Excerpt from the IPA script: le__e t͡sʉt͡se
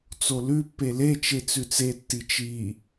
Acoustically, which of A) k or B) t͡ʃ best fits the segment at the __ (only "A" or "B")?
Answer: B